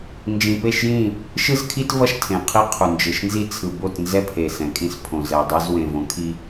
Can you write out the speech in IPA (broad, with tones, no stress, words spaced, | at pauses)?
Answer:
nd͡ʒĩ˨pe˦˨ʃjĩ˦˨ | ʃɯ˦zkʰi˦tvʌ˦ʃ tʰẽ˨qʰi˦ qʰu˨nd͡ʒɯ˨ʃnzi˦ t͡sʰɯ˨ bo˦˨tnzɛ˦ pʰe˨sɛ̃˨kʼĩ˦s pʰõ˨ zɛ˨dˤʌ˦z wẽ˨võ˨˦kʰi˦